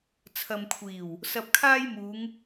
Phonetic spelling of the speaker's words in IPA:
t͡sʰ ɐ˨ m kʷʰ iː˨˩ w | s ɐ˧ p̚ kʰ aː˥ j m uː˨˧ ŋ

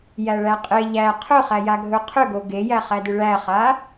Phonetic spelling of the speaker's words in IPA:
j æ ɭ æ qʼ e ʎ æ qʰ ɵ χ æ j a ɡʱ ɵ qʰ ʏ ɡ o ɡ e j æ χ æ d ʏ ɭ æ χ a

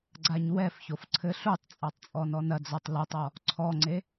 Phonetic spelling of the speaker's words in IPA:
ɡ͡ǀ a ɲ w ɛ f ç o f ǀʰ ɘ ɬ u tˤ t͡sʼ a tˤ t͡sʼ ɔ n ɔ n ɐ d͡z ɔ tˤ l u tˤ ɔ | ǀʰ ɔ ŋ͡ǀ e

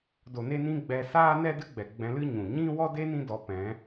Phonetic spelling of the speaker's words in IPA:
d o˨ n e˧ n ĩ˧ ɡ͡b ɛ˧ s aː˦ n ɛ˦ d ɨ˦ ɡ͡b ɛ˨ ɡ͡b ɛ̃˧ l ɨ˦ ɲ ũ˨ ɲ ĩ˦ w ɔ˦ d e˦ n ĩ˦ d ɔ˨˦ p ɛ̃˨˦

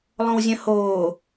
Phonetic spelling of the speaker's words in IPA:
lˠ õ w zʲ œ̃ h oː

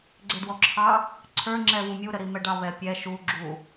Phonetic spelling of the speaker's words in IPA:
ɡ͡ǀ ɪ d w ɔ ǁʰ ɑ | ǀʰ ə˞ ŋ͡ǁ ɛ v u mʲ u ɾ ə ɾ i m ɛ ɖ ɑ β ɛ pʲ ɛ ʃ u ɡ͡ǁ u

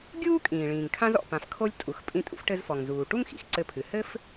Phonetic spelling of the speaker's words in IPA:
ɡʲ uː˥ kʼ ĩː˩ ɭ ĩː˩ ŋ kʰ ã˧ z ɔ̰˩ p ã˩ f kʰ o˧ lʲ tʼ u˩ x pʼ ĩ˧ tʼ ṵ˧ f ʈ ɘ˧ z f ɔ˩ ŋ z uː˩ ʈ u˥ ŋ x ḭ˩ x ǀ ɘ˧ pʰ ɨ˩ h ɘ˥ f

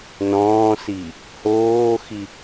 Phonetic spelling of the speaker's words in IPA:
n ɔ̃ː s i | h oː x i

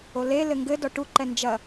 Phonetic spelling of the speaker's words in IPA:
o l e l ɘ ŋ ɡ ɘ d ɔ ʈ u ǃ ɛ n d͡ʒ ɐ

